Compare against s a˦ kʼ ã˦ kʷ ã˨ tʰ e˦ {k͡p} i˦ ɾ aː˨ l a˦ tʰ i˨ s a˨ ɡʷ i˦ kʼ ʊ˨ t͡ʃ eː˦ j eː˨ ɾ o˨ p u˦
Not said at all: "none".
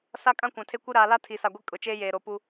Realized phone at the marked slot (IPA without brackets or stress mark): kʷ